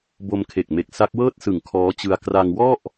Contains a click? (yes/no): no